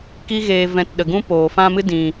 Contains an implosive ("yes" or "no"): yes